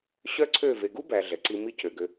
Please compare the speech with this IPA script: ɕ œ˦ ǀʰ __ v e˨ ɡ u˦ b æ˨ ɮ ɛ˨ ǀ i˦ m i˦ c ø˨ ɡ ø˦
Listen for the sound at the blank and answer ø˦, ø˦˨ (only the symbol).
ø˦˨